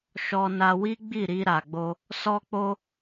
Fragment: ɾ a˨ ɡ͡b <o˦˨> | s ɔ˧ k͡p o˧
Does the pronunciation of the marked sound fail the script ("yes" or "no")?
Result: yes